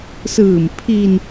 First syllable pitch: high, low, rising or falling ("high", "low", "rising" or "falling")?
low